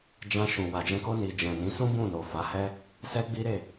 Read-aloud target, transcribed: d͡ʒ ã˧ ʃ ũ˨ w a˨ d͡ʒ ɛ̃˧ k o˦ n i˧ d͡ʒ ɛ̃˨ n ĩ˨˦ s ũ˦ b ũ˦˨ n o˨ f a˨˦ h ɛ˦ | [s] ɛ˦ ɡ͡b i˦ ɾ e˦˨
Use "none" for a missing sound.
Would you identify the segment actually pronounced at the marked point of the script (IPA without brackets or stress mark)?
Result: s